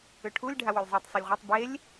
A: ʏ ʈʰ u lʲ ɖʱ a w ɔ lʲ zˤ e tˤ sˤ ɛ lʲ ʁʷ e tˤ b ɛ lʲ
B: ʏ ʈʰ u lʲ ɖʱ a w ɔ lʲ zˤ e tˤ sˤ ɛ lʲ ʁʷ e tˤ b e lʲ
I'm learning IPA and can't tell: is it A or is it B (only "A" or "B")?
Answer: B